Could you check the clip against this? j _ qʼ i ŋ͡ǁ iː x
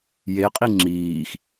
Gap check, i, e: e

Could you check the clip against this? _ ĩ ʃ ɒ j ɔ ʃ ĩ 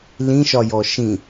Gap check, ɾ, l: l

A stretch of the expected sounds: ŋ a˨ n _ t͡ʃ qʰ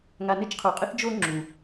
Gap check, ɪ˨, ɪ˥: ɪ˥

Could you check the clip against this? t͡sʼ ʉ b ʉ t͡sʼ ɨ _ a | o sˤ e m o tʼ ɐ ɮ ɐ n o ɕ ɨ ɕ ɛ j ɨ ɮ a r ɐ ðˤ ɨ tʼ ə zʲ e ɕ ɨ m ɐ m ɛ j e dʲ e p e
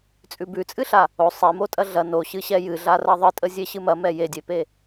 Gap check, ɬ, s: ɬ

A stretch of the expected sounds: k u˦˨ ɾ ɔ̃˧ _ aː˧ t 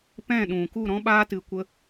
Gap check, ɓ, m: ɓ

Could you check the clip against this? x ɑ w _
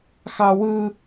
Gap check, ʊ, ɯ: ɯ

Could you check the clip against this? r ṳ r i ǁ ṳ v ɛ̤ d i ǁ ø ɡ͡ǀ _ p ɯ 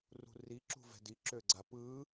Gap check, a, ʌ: a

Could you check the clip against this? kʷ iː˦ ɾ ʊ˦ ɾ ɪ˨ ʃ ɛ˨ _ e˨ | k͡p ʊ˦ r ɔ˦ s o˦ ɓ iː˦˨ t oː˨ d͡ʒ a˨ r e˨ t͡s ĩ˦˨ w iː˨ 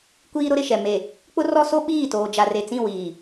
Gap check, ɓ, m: m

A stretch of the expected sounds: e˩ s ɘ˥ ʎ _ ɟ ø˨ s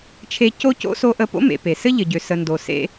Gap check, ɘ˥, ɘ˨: ɘ˨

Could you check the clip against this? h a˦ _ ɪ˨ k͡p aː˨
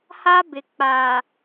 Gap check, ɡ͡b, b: b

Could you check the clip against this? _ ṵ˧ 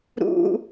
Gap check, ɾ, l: ɾ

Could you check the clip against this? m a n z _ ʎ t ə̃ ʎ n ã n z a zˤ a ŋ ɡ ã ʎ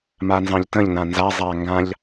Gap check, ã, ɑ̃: ɑ̃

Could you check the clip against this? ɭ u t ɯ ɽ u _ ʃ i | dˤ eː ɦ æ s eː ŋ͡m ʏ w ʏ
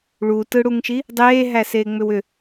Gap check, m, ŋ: ŋ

